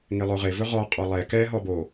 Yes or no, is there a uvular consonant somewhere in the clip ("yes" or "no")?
yes